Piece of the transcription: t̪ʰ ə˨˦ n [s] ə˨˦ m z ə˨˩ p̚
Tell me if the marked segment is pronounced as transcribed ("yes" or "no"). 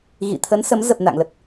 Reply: yes